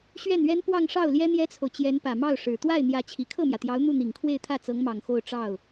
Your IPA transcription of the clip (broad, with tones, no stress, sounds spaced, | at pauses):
ɕ ɥ ɛ˥˩ n ɥ ɛ˥ n p w ɑ˥˧ ŋ ʂ ɑ˥˩ ʊ̯ l j ɛ˥ n̪ j ɛ˥ t͡sʰ o˨ ʊ̯ t͡ɕ j ɛ˧˥ n p ä˨˩ m ɑ˥˩ ʊ̯ ʂ ɻ̩˨˩ t̪ w a˥˩ ɪ̯ n̪ j ä˧˥ t͡ɕʰ i˨˩ kʰ ɤ˥˩ m j ä˩ t̪ j ɑ˧˥ ʊ̯ n̪ u˥˩ n̪ i˨˩ ŋ kʰ w e˥˧ ɪ̯ t̪ʰ ä˥˩ t͡s ɤ˧˥ ŋ m ɑ˨˩ ŋ x o˥˧ ʊ̯ ʈ͡ʂ ɑ˥˩ ʊ̯